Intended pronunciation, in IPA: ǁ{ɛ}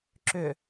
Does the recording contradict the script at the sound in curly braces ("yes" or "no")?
yes